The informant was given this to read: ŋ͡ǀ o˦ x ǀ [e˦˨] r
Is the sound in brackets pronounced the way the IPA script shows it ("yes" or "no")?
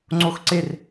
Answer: yes